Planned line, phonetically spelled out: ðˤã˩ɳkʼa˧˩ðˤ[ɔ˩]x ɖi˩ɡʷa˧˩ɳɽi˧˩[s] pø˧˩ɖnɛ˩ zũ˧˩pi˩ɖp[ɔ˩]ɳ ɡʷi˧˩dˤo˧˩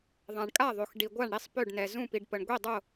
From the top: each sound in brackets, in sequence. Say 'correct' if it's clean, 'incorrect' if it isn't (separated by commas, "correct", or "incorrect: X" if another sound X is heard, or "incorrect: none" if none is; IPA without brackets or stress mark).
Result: incorrect: o˩, incorrect: sˤ, incorrect: ə˩